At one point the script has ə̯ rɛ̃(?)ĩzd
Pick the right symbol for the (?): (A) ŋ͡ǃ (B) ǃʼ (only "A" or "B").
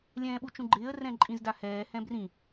B